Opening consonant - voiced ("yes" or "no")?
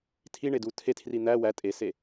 no